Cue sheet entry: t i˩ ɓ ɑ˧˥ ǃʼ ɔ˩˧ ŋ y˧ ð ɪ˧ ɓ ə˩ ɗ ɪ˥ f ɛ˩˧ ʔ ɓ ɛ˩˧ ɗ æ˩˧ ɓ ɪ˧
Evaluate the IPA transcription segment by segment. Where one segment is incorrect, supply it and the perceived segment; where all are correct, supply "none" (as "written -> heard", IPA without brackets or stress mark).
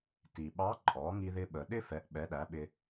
y˧ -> i˧